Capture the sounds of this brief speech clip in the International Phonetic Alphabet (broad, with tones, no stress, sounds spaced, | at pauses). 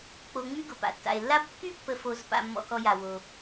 k͡p o˨ ŋ͡m y˦ ɡ ʊ˩ p a̰˩ tː a̰˩ e̯ lː a˦ b kː y˥ pː ə˨ f o˨ z p a̰˨ mː ɔ̰˨ k ɔ˨ j a˩ w o˩